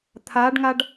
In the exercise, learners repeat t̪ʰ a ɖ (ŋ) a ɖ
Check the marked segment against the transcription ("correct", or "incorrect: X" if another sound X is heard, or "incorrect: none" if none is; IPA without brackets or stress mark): correct